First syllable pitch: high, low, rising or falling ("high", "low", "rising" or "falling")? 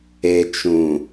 low